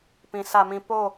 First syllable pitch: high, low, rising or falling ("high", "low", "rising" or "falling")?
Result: low